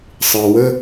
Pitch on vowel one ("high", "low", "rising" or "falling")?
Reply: low